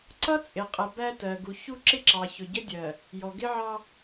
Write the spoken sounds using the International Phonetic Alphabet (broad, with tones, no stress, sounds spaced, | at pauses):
ǀ ʌ˦ t͡sʼ ɪ˨ qʼ ə˨ b æ˦ t ɜ˨ ɡ u˨ ç u˦ ǁ ɪ˦ ǁ ɑ˨ ç ʊ˨ ɟ ə˦ dʲ ɜ˨ | j ɔ˨ ɡ ɪ˦ ʕ ɑ˦